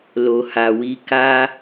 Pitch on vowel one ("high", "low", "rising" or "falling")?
low